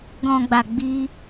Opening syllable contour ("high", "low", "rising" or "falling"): low